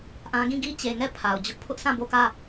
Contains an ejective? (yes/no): no